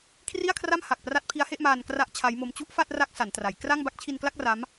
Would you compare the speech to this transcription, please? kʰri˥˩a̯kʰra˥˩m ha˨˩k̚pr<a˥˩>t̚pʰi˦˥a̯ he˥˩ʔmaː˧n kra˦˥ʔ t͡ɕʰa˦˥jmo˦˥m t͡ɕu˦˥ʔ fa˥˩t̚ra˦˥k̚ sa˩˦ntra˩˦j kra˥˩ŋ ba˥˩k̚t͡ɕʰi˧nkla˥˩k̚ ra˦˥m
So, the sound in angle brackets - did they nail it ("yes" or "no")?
no